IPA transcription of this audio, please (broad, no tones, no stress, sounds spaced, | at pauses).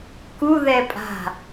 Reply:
k u ð ɛ pʼ a̤